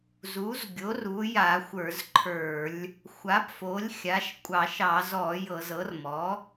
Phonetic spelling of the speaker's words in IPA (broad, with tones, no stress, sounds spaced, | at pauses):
z u˩˥ z ɡʲ o˩˥ r u˩˥ j a˧˩˧ xʷ ə˞˧˩˧ z ǃʰ ə˞˧˩˧ lʲ | xʷ a˩˥ p f o˩˥ lʲ xʲ a˩˥ ʃ kʷʼ ɑ˧˩˧ ʃ ɑ˧˩˧ z ɔ˧˩˧ j ɤ˧˩˧ z ɤ˩˥ r m ɔ˩˥